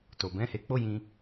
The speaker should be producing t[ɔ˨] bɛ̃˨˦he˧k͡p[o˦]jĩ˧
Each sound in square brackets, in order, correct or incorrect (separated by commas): incorrect, correct